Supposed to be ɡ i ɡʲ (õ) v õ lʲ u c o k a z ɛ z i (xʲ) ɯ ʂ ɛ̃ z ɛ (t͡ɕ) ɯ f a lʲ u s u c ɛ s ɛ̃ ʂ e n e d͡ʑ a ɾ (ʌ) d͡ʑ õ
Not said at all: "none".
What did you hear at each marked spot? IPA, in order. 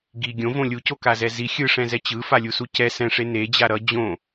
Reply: õ, xʲ, t͡ɕ, ʌ

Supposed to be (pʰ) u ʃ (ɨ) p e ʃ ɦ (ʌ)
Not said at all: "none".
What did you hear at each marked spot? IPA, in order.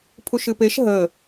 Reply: pʰ, ɨ, ə

